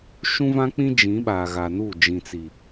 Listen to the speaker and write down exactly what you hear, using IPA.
ʃ ũ˦ v ã˦ k͡p ĩ˦ d͡ʒ ĩ˨˦ ɓ a˨ ɣ a˨ n u˦˨ d͡ʒ ĩ˨ t͡s i˨

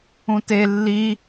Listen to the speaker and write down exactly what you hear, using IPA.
ũ t e lː i

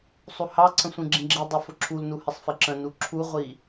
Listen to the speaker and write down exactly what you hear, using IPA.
sˤ u h ɑ ǀʰ ə̃ sʷ ĩ ɡ͡ǁ ĩ ɡ͡ǁ i dˤ ʊ f ʊ ǁʰ u l n u h ɪ sˤ f ɪ ǁ ə̃ n u ǁʰ u ʁʷ i

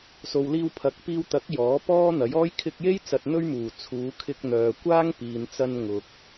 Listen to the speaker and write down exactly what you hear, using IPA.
s o˨ w l iː˧ w pʰ ɐ˨˥ k̚ p iː˧ w t̪ ɐ˨˥ k̚ j ɔː˨˥ p ɔː˥ n̪ ɐ˨˥ j ɔː˥ j kʰ ɪ˧ k̚ j e˥ j t͡s ɐ˧ t̚ n̪ ɵ˥ ɥ m uː˨˩ t͡sʰ uː˨˧ kʰ ɪ˧ k̚ n̪ œː˨ kʷ aː˥ ŋ p iː˨ n t͡s ɐ˧ n ŋ ʊ˨ k̚

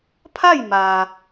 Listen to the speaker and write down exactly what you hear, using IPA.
pʰ a˥˨ j m a˩

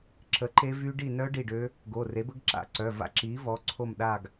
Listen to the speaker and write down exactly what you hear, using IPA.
ǁ ə˩˥ ǃ e˦˥ v y˦˥ ɖ i˦˨ n œ˦˥ ɖ i˦˨ ɖ ø˦˥ | ɡ o˩˧˩ r e˩˥ b ə˦˥ ɡ ǁ a̰˦˨ ǀ œ˩˧˩ v a̰˦˨ ǁ i˩˥ v ɔ˩˧˩ ǀʰ o˦˨ m ɗ a˦˨ ɡ

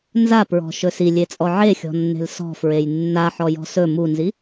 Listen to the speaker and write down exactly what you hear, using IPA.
n z a p ɹ ɔ̤ ʃ ɵ s i lʲ e t͡sʼ ɔ ʕ e xʲ ɔ̤ nː e̤ l s ɔ̤ f ɹ e j nː a ħ ɔ j ɔ̤ s ɵ m u n z i

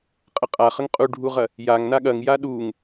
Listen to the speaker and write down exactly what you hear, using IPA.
qʼ ə qʼ a χ ə ŋ qʼ u ɖʱ u ʁ ɐ | j a ŋ n a ɠ ɐ ŋ j a ɗ u ŋ

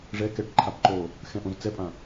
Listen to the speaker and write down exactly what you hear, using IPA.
ʐ ɛ k ɛ ʈ ǃʰ a b ǃ o | x ɛ̃ ʔ õ z t͡s ɛ pʼ ã

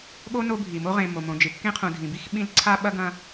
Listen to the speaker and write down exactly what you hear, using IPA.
ɠ o˥ n o˦ bʱ i˩ m o˥ ʁ ẽ˨ m o˩ m õ˨ d͡ʒ ɨ˨ kː ẽ˥ qʰ ũ˨ dʱ ĩ˩ b i˥ x ɓ ĩ˦ l ǀʰ a˥ ɓ ɐ˥ ɡ ɐ̃˦

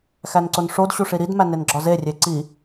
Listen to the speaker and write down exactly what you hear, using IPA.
x æ n ǀ o n ʂ o d ɕ u ʂ i ɾ i d m æ n e n ɡ͡ǁ ɒ z e rʲ e ǀ i

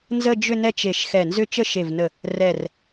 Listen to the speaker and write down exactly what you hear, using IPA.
n z ə˥˧ d͡ʒ ʏ˥˧ n ɛ˥˧ t͡ʃ e˧˩ ʃ x ɛ˧˩ n z ʏ˥˧ t͡ʃ ə˥˧ ʃ e˧˩ v n ə˧˩ | r ɛ˧˩ r

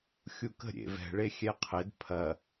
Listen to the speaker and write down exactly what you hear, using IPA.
xʲ u k ə̤ ɾʲ ḛ v ɛ̤ ɭ e xʲ ɛ qʰ ɪ d pʰ ɐ

